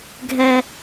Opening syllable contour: low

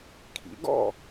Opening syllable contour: rising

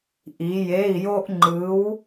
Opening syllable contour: rising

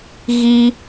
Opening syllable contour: high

